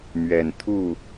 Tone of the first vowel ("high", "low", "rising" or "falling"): low